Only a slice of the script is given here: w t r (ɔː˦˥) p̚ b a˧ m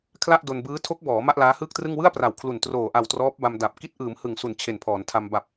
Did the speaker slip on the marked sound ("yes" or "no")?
no